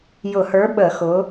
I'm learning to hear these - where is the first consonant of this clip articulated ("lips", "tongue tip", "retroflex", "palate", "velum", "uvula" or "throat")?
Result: palate